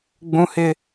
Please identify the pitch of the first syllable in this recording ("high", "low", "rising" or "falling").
high